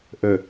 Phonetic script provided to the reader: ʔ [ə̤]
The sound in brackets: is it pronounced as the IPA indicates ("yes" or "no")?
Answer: no